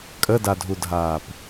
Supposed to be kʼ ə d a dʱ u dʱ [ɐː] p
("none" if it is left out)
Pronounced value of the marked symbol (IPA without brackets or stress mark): aː